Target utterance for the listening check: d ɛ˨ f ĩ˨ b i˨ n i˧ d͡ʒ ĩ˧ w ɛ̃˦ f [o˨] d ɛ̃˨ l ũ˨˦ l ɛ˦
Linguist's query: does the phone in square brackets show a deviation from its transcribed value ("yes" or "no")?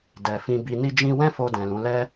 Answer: yes